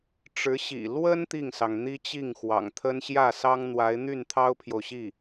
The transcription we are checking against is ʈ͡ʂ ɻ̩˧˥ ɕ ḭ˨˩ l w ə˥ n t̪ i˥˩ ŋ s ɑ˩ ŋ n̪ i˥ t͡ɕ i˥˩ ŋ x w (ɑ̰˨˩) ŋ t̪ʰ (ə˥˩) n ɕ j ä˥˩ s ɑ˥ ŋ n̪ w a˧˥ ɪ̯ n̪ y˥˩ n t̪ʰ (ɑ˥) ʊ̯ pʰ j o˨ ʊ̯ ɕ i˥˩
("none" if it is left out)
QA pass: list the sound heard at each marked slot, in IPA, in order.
ɑ̰˨˩, ə˥, ɑ˥

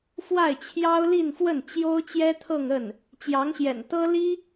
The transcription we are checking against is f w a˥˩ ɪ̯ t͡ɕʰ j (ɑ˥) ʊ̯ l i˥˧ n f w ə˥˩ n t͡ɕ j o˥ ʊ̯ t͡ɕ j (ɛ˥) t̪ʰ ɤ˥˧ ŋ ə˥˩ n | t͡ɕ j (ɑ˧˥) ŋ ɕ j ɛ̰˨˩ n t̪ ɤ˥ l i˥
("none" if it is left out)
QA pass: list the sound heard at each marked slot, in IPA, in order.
ɑ˥, ɛ˥, ɑ˧˥

